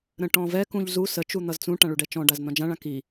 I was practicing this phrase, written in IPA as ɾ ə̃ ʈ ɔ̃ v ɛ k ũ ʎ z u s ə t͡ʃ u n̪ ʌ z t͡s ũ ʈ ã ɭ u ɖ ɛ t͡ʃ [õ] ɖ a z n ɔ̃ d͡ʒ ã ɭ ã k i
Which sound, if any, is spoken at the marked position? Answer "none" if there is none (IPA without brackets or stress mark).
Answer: ɔ̃